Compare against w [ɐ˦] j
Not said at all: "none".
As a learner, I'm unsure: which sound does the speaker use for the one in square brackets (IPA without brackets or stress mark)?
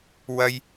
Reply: ɐ˦